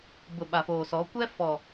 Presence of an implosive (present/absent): present